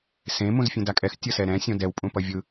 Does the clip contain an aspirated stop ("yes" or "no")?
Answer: no